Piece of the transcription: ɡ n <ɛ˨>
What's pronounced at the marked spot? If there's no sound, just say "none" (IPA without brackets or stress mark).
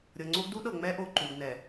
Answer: ɛ˨